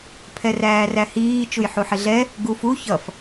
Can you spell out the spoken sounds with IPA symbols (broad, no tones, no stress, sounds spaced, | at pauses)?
pʰ ɛ r æː r æ h iː t͡ʃ u j ħ u ħ ɪ ɮ ɛ | ɡ u f u ç ʌ f